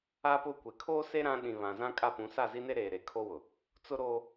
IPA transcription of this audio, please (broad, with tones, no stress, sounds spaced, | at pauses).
a˦ p ʊ˦˨ kʷ e˨ kʰ oː˦ s e˦ ɾ ã˦ ɗ ĩ˨ β ã˨ z ã˦ kʼ a˦ p ũ˨˦ s a˦˨ z i˦ n e˦ ɾ eː˨ ɾ e˨ kʰ o˦ w ʊ˨ | t͡s ʊ˦ ɾ o˦